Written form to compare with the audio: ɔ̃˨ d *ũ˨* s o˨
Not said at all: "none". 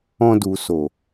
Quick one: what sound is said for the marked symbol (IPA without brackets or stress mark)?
u˨